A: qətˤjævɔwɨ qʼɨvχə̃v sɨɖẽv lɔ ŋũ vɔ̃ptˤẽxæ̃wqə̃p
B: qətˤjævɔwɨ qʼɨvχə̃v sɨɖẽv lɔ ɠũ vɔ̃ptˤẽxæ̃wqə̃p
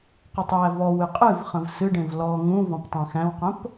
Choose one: A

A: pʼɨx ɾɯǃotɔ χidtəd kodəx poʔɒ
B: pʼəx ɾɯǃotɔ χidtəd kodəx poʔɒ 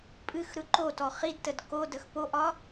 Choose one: A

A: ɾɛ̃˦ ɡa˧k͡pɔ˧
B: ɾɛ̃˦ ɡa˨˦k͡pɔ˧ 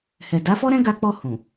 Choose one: A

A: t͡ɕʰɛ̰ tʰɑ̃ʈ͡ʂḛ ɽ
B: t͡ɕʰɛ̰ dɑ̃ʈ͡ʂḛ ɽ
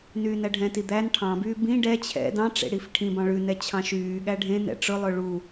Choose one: B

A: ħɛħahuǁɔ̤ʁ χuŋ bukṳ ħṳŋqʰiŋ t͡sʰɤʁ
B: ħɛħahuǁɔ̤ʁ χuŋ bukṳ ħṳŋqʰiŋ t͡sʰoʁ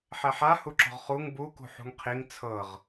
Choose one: A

